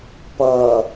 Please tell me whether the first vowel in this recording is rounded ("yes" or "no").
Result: no